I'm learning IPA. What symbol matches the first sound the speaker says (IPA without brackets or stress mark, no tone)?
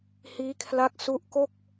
h